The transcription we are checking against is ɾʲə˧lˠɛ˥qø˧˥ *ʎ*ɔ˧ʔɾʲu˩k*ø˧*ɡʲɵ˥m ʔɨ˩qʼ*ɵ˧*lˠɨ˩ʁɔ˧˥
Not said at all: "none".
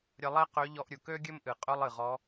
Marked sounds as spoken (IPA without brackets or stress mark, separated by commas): ʎ, ø˥, ɵ˥